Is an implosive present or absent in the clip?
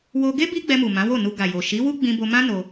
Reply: absent